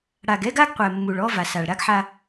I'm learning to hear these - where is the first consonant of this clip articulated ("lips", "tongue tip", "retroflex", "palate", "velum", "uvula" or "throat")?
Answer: retroflex